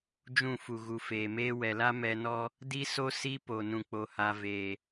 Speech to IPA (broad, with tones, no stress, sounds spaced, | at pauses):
d͡ʒ ũ˦˨ f u˨ ɣ u˨ f eː˨ m eː˦ w ɛ˨ l a˦ m ɛ˦ n ɔ˦ | d i˦ s o˦ s i˦ p o˨ n ũ˨ k͡p o˨ h a˨ v eː˨